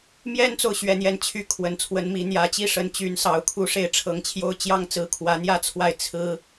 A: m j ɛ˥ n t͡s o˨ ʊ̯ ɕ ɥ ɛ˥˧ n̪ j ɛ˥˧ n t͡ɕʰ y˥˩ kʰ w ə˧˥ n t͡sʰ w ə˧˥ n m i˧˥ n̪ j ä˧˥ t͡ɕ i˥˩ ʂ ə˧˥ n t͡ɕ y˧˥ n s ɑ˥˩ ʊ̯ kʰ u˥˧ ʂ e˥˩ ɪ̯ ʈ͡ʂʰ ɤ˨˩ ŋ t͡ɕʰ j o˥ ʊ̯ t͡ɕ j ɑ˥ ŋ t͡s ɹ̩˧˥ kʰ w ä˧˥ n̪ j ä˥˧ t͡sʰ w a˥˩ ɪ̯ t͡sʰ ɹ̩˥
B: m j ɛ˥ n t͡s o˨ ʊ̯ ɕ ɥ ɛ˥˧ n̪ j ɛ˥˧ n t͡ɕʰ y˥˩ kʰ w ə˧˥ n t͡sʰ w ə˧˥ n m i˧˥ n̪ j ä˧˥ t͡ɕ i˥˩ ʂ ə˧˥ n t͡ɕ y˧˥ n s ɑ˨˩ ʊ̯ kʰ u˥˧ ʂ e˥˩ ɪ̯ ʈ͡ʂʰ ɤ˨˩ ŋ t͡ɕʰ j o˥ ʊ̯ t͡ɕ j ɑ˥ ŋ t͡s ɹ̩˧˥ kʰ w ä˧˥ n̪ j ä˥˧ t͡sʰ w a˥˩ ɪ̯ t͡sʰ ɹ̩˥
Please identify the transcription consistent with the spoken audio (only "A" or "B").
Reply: B